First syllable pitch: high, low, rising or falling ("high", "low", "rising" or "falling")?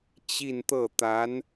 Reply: falling